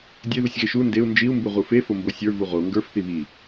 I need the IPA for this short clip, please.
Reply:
dʲ e ð u sʲ ɣ e ʃ u n d e u̯ n d͡ʒ i u̯ m b u ʁ u f e f o m b o sʲ ə˞ v u ʁ o ŋ ɡ ə˞ f θ i β i

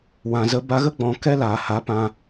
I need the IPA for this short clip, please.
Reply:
w ã˨ z ə˧ b a˧ ɣ ə˦ ɡ͡b ɔ̃˨ k ɛ˦ l aː˨ h a˨˦ p ã˧

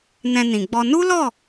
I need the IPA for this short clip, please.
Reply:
n ɛ̃˧ n ĩ˨ ɡ͡b ɔ˧ n u˦ l ɔ˦˨

